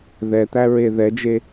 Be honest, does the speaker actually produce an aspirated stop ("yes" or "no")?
no